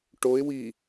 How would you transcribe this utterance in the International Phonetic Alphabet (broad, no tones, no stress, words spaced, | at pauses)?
ʈoɪ̯ wi